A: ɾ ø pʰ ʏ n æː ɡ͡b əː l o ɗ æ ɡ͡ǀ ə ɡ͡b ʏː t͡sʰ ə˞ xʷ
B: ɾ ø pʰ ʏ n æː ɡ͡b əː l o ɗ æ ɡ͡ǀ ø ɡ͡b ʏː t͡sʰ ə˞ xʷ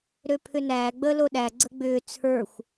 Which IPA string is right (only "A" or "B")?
A